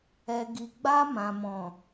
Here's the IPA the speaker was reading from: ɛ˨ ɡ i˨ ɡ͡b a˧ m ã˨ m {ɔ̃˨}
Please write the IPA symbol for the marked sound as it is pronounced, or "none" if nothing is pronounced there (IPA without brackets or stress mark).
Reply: ɔ̃˨